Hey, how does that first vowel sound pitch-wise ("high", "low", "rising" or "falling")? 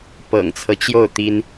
low